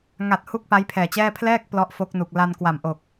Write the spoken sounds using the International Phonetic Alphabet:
ŋa˨˩t̚ hu˥˩k̚pa˦˥jpʰɛː˨˩t͡ɕɛː˥˩ pʰlɛː˥˩k̚ plɔ˦˥ʔfo˦˥k̚nu˨˩k̚ la˧n kwa˨˩mʔo˨˩k̚

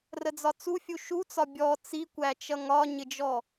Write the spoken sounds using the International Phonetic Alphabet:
rəd͡zɒt͡sufʲu ʃut͡sɒ bʲɔ t͡sikʷæt͡ʃʌ ŋɒɲɪd͡ʒɔ

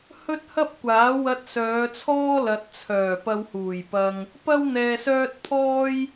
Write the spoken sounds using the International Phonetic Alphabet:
hɵ˥t̚hɐ˥p̚kʷaː˨˥wɐ˧t̚ sœː˨˧t͡sʰɔː˥lɐ˨t̚t͡sʰœː˨˩ pɐ˧whuː˨˩jpɐ˧ŋ | pɐ˥w n̪ɛː˧sœː˥t̚ pʰɔː˥j

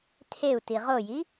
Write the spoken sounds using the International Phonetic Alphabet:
tʰeu̯ tiʁoji

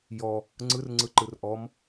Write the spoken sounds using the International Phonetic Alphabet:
jɔ | ŋ͡ǀɯrŋ͡ǀɯ ǃɯrʔɔm

